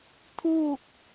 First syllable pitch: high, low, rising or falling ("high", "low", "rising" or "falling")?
falling